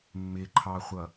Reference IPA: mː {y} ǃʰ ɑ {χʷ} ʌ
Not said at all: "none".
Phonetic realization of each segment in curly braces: ɪ, χʷ

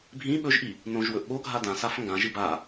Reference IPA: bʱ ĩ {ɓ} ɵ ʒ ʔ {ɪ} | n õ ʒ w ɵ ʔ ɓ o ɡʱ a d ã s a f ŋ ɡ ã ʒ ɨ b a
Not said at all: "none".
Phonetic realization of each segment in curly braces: ɓ, i

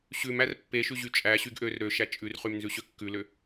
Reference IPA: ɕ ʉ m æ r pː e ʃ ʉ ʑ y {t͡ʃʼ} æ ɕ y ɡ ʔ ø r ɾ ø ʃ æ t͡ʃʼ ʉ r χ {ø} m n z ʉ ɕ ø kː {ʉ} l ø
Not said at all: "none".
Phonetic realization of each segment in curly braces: t͡ʃʼ, y, ʉ

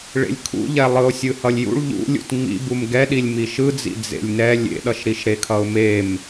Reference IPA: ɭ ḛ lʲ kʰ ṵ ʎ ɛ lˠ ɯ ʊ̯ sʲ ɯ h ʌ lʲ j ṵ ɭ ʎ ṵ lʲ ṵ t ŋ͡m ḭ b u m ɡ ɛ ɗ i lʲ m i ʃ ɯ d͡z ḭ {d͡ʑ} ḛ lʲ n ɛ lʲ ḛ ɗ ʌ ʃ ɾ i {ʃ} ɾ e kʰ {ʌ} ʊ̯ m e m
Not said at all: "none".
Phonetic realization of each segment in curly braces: d͡z, ʃ, ʌ

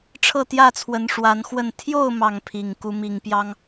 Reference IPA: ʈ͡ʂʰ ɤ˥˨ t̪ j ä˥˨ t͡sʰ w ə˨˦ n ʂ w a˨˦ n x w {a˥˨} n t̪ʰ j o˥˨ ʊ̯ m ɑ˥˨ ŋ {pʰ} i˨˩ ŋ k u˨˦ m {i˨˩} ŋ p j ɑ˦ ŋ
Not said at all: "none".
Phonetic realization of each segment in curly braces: ə˥˨, pʰ, i˨˩

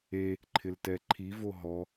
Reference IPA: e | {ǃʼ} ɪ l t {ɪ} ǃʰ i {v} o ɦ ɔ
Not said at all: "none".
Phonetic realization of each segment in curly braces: ǃʰ, ɛ, v

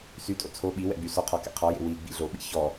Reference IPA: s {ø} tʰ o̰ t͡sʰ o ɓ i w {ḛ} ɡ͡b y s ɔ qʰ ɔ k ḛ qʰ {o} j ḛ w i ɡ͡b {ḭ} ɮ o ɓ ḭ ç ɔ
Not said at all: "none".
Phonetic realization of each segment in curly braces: y, ɛ̰, ɔ, ḭ

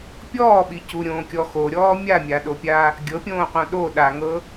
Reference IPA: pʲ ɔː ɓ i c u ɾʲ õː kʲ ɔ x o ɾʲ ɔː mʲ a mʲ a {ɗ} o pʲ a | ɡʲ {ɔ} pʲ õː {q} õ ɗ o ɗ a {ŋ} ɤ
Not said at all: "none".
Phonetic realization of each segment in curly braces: ɗ, ɤ, q, ŋ

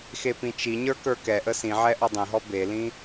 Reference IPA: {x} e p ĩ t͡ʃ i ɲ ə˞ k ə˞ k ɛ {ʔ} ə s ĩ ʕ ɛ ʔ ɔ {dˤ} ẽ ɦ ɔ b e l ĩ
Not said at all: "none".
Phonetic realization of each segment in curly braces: x, ʔ, dˤ

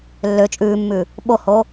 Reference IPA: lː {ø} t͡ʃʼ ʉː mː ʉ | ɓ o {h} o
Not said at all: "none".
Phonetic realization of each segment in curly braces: ø, h

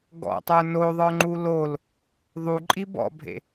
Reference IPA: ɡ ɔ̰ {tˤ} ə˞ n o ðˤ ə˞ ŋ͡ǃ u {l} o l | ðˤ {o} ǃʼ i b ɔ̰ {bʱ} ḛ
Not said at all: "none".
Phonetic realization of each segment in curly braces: tˤ, l, u, bʱ

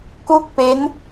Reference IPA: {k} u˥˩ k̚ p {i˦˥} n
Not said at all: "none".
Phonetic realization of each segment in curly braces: k, e˦˥

